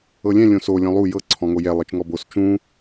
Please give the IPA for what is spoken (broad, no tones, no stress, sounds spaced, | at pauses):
ɤ lʲ ɛ̃ lʲ õ s o lʲ ɔ̃ lˠ u j ɤ ǀʰ ɔ̃ ŋ o j ɛ lˠ ɯ t͡ʃ ŋ ɔ b o s t͡ʃ ũ